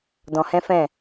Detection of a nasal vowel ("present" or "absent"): present